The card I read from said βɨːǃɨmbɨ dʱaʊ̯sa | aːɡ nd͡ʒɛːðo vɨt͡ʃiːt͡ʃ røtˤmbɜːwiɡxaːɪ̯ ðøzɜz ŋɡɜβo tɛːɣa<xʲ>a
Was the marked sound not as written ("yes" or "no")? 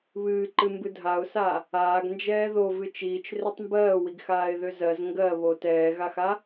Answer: yes